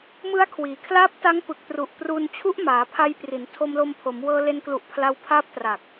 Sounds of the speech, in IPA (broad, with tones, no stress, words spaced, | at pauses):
mɯ˦˥a̯kʰwiː˩˦kʰlaː˦˥p̚ ta˦˥ŋpɯ˨˩k̚tru˨˩ʔ pru˧nt͡ɕʰu˦˥ʔ maː˩˦pʰa˧j pri˩˦n tʰo˧mlo˧mpʰo˩˦m wɤː˧le˧nklu˨˩ʔ pʰla˧wpʰaː˦˥p̚tra˨˩k̚